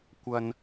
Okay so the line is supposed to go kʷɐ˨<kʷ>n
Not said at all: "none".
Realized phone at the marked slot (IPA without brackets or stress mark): none